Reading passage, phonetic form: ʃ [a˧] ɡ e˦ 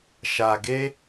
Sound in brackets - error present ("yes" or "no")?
no